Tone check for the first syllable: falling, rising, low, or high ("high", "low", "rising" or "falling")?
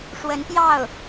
rising